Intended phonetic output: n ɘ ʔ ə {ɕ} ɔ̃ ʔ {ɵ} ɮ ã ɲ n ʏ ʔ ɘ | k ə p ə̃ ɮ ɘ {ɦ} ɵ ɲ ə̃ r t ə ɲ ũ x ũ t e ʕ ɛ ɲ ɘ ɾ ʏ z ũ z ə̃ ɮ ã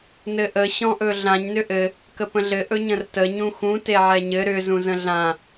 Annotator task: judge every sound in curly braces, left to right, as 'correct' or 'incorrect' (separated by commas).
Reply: correct, correct, incorrect